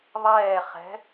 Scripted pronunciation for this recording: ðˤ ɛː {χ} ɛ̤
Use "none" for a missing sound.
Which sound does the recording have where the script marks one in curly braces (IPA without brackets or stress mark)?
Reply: χ